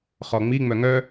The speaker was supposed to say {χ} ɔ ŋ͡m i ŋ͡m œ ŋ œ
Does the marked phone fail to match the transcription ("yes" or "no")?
no